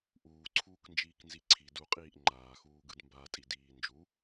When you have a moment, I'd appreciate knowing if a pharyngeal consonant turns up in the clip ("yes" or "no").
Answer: no